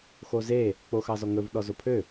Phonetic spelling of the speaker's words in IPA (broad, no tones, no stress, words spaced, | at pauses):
xoze | k͡poxɑzɔŋɵv ɗɔzopʰø